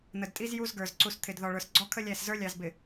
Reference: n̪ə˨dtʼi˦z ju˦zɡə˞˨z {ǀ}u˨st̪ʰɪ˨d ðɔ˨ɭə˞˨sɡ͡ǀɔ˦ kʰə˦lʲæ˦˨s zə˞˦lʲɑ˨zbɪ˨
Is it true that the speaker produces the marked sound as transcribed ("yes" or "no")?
yes